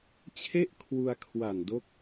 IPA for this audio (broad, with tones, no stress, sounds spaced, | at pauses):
t͡ɕʰ e˥˩ ʔ kʰ w u˧ a̯ kʰ w a˨˩ n d o˦˥ k̚